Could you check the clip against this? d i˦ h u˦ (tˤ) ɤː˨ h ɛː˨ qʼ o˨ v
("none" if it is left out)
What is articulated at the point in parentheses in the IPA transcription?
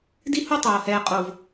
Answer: tˤ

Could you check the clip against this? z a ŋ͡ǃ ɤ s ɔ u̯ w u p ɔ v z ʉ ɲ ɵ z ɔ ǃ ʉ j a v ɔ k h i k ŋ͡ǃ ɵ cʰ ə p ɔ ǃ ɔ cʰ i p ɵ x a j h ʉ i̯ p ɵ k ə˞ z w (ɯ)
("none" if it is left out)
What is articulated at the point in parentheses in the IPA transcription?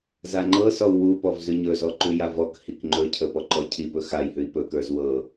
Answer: ɤ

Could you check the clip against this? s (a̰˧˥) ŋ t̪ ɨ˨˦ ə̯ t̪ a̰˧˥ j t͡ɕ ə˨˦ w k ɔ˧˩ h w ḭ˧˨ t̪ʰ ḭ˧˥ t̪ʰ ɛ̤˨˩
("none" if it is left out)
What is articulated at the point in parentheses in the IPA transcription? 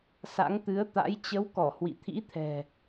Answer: a̰˧˥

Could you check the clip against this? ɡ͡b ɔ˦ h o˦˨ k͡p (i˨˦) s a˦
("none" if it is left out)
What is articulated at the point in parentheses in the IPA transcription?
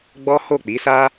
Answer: i˨˦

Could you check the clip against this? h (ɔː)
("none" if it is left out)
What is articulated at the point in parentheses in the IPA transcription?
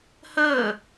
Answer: əː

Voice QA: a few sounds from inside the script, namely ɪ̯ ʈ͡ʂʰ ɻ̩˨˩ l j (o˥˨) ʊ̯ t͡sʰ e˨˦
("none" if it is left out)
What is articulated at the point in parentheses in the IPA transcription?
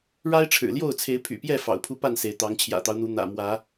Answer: o˥˨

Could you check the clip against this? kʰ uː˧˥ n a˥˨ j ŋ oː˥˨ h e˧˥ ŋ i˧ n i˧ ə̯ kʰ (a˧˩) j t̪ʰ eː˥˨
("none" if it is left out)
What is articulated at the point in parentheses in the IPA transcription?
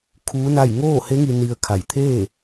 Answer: a˧˩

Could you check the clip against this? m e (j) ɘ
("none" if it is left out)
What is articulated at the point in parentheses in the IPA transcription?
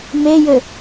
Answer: j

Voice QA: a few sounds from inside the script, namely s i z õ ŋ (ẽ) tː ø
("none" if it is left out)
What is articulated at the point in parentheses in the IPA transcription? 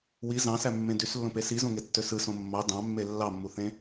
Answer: e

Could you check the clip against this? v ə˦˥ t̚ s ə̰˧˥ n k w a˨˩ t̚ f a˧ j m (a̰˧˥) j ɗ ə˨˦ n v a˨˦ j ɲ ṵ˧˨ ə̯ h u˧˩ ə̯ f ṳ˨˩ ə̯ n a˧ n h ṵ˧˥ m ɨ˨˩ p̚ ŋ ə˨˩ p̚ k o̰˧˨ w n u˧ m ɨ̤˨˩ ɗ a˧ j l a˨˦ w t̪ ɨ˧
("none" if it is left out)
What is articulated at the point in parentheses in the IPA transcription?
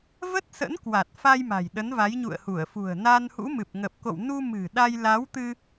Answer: a̤˨˩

